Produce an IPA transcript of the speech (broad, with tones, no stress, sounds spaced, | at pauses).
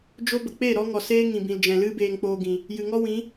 d͡ʒ o˦ b ə˨ k͡p e˦˨ ɾ ɔ˦ ŋ ɔ˨ s eː˦ ŋ ĩ˨ b ĩ˨ l d͡ʒ ɛ̃˨ l ɨ˦ b eː˧ ŋ k͡p oː˧ ɡ ĩ˨ | j ɨ˨ ŋ ɔ˦ w ĩ˨˦